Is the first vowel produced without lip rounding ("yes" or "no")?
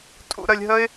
no